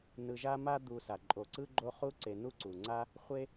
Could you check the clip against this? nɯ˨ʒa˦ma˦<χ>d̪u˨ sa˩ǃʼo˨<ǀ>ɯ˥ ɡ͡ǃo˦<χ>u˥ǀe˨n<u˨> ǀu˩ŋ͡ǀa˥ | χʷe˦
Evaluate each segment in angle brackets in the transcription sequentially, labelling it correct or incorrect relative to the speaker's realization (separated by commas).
incorrect, correct, correct, incorrect